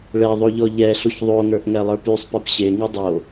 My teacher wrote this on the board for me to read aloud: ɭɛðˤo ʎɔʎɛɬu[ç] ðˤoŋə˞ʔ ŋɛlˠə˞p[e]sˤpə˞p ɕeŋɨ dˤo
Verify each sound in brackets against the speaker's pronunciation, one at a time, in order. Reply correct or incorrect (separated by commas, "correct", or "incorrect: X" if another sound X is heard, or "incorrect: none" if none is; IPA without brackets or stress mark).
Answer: correct, incorrect: y